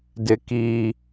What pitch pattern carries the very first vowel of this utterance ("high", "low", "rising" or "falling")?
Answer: high